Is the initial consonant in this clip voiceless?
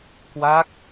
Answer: yes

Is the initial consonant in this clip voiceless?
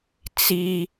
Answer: yes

